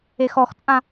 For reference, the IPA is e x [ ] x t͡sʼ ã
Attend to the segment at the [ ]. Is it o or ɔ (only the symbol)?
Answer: ɔ